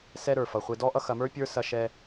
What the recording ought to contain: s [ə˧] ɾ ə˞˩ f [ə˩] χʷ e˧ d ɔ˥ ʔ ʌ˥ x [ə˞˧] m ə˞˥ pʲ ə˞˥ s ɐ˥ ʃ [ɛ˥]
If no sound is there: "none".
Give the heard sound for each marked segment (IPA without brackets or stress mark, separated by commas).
ɛ˧, ʌ˩, ɐ˧, ɛ˥